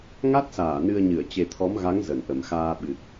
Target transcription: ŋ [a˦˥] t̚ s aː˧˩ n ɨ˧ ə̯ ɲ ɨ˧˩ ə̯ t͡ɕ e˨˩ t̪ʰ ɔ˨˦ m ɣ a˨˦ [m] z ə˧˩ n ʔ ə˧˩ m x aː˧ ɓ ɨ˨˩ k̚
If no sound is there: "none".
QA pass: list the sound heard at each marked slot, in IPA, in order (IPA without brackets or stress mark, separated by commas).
a˦˥, ŋ